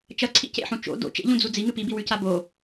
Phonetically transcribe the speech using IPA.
t͡ʃɐǀʰḭ cḛħũ t͡ʃo̰ do̰ t͡ʃḛʎũd͡zu d͡ziŋɨ pibiwʉca bo

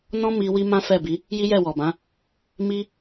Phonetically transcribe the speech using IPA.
nɔ̃˦mi˧ wi˦mã˦fɛ˦˨bi˨˦ | ji˦jɛ˦˨wɔ˨bã˨˦ | mi˦

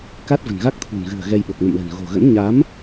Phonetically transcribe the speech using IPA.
ka˦˥t̚və̤˨˩nɣa˦˥k̚ t̪ʰṳ˨˩nɣɨ̤˨˩ə̯ɣɛ˧j ɓo˨˩k̚nə̰˧˨mlə̤˨˩n ɣo̤˨˩ɣə̰˧˥n ɲa˨˦m

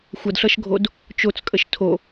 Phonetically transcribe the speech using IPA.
xʷʌdɬʌʃɡʱod | t͡ʃot͡skʼəʃ tʰo

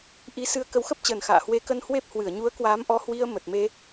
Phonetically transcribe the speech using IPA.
ʔi˨˦sɨ˧ə̯ kə˨˦wxə˦˥p̚t͡ɕəː˨˩n xa̰ː˧˨ hwe˨˦kə˧n hwe˦˥p̚hwɨ˧˩ə̯ ɲu˨˦ə̯kwaː˨˦mʔɔ˨˦hwi˧ə̯ mə˨˩t̚me˧

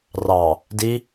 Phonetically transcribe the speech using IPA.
rɑ | di

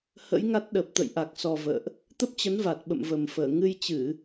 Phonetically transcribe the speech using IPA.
hə̰˧˥jŋa˦˥t̚ɗə˨˩p̚ t̪ə̰˧˨jʔa˨˩k̚sɔ˨˩ və̰ː˧˨ʔ | t̪ə˦˥p̚t͡ɕə˨˦nva˨˩t̚ ɓə̰˧˨mvə˨˩mfəː˧˩ ŋɨ˧jt͡ɕɨ˧˩˨

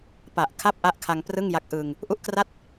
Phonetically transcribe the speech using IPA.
pa˨˩ʔ kʰa˥˩p̚ʔa˦˥ʔkʰa˧ŋ prɯ˥˩ŋja˦˥k̚ʔɯ˧ŋ | ʔu˥˩ʔkra˥˩t̚

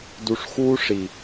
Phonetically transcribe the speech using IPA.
du˧ʂ xuː˦ʂi˨

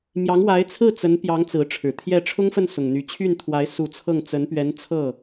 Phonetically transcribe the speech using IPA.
mjɑ˧˥ŋwa˧˥ɪ̯t͡sʰɹ̩˥˩ t͡sə˧˥npjɑ˧˥ŋ t͡sɹ̩˧˥ʈ͡ʂʰɻ̩˨˩t̪ʰjɛ˥˩ ʈ͡ʂʰʊ˥ŋfə˥˩n sʊ˨˩ŋn̪y˧˥ t͡ɕʰy˥˩nt̪ʰwa˧˥ɪ̯ su˨˩ t͡sʰɤ˥˩ŋ t͡sə˧˥npɥɛ˧˥n t͡sʰɤ˥˩

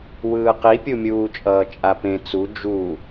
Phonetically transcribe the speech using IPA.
wɯːqipʲumʲuː t͡ʃʼʌːt͡ʃʼapẽ t͡su d͡ʒu

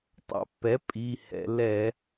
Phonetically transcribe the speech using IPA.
tˤa̰˩˧pːɛ˩˥ pʼi˩˧˩hɛ̰˩˧ lɛ˧˩˧

